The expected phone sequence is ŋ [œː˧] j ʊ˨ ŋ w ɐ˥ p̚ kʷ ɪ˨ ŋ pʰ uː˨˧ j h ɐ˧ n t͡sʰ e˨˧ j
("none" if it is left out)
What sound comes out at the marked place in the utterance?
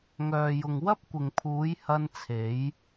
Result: œː˨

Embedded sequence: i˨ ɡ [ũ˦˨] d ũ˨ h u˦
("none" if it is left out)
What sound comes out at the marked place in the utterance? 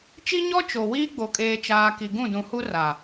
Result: ũ˦˨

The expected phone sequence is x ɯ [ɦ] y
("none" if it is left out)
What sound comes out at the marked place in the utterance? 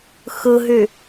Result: ɦ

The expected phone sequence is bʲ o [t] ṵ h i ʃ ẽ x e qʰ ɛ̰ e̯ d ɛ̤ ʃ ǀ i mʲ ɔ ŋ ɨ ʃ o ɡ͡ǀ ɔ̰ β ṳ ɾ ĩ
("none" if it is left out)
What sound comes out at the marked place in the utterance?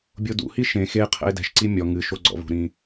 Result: d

